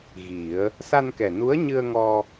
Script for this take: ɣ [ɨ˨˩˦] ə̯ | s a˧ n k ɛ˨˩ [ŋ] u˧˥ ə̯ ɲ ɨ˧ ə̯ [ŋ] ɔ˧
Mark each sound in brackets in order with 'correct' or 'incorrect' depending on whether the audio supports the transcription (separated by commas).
incorrect, incorrect, correct